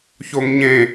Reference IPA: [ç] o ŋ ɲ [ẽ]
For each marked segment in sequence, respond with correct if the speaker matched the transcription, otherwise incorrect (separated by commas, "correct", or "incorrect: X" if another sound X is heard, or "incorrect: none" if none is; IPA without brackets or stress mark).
correct, correct